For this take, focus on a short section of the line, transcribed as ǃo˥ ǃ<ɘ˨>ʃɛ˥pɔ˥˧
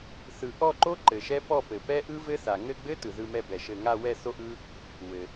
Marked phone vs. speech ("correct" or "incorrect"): correct